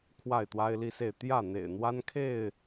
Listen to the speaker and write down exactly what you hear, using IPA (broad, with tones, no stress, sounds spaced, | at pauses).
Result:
kʰ w a˥˨ ɪ̯ t̪ w a˦ ɪ̯ l i˦ s e˥˨ ɪ̯ t̪ j ä˥˨ n̪ ḛ˨˩ ɪ̯ n̪ w a˦ n kʰ e˥˨ ɪ̯